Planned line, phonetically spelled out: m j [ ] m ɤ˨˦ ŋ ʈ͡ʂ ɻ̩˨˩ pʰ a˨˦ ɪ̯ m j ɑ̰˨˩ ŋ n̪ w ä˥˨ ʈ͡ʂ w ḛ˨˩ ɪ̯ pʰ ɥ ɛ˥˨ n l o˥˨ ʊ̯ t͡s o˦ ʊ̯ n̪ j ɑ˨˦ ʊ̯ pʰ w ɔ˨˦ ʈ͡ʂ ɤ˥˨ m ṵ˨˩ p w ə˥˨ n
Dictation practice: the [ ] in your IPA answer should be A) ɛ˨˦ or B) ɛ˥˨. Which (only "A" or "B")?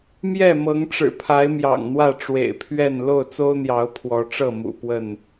B